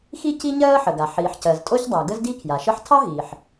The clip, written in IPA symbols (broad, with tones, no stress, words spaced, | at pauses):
xi˥ ci˥ ɲɜː˥ħə˩ɡa˩ ħiː˩ħcɜ˩z tʼo˥çdˤa˩ ɡə˥zdi˥kʰja˩ ʃə˥ħ tʰɑ˥ɦiː˩ħ